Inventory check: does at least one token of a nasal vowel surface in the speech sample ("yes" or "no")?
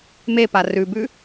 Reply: no